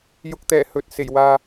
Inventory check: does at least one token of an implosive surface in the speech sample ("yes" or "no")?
no